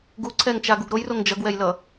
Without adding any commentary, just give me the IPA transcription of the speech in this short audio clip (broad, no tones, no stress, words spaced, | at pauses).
ɡuǀʰɛŋt͡ʃaɡuɡ ɾojroŋ d͡ʒʌɡwɛjlʌ